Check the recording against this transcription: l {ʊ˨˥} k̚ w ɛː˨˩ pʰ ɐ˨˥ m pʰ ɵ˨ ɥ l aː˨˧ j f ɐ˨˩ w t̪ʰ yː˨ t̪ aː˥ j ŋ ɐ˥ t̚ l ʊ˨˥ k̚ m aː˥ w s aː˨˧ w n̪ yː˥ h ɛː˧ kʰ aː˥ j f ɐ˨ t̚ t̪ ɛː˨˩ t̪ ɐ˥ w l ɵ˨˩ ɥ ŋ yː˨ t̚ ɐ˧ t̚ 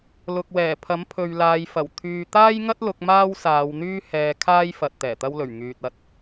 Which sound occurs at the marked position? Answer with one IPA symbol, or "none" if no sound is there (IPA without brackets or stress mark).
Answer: ʊ˨